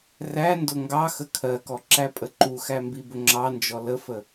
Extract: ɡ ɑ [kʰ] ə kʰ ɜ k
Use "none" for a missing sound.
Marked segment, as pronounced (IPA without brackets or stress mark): x